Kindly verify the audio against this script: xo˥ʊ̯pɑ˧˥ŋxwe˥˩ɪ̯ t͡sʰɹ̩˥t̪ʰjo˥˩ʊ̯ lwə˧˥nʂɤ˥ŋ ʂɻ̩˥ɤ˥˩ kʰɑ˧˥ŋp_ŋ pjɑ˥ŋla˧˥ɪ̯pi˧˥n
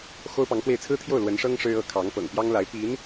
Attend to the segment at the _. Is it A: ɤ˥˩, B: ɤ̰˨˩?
B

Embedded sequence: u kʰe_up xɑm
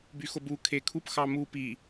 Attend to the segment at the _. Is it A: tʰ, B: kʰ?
B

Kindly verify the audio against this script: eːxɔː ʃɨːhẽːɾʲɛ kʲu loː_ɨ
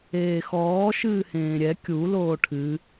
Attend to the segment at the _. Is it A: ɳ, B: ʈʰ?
B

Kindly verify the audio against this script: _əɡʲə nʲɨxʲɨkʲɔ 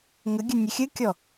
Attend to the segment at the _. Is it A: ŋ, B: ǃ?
A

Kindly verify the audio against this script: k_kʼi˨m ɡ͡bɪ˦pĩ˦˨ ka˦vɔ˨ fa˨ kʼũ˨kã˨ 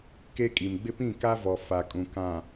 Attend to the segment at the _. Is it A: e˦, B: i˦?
A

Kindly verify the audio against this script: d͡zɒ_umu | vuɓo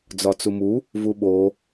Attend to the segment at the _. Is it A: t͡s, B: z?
A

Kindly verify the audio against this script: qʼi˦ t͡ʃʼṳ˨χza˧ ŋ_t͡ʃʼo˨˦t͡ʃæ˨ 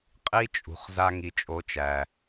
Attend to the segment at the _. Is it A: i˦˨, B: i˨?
B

